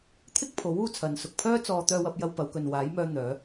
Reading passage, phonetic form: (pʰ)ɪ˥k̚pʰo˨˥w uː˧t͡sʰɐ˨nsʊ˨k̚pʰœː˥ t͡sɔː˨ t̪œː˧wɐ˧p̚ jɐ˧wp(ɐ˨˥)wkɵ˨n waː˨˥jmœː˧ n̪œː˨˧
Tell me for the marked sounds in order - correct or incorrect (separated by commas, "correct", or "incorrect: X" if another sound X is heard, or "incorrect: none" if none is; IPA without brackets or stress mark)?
incorrect: t̪ʰ, incorrect: ɐ˨˧